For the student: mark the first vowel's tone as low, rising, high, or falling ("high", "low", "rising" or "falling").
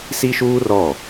high